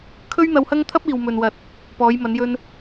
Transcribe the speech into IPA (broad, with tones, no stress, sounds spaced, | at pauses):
kʰ ɵ˥ ɥ n̪ ɐ˧ w h ɐ˥ ŋ t̪ʰ ɐ˥ p̚ iː˨ w m ɵ˨ n w ɐ˨ t̚ | p ɔː˨˧ j m ɐ˨˧ n j ɵ˧ n